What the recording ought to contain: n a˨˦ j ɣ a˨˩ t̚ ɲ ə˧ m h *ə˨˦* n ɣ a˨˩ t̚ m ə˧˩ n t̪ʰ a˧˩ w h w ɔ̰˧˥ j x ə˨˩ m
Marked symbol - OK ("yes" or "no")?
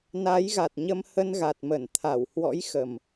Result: no